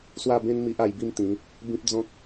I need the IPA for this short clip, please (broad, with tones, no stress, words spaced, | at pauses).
swa˥˧bẽ˦n mi˦ʔa˧jbi˦mt̪ĩ˨˦ | bĩ˦p̚d͡zɔ̃˦k̚